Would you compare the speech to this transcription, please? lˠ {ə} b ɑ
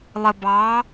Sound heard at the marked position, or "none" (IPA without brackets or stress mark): ə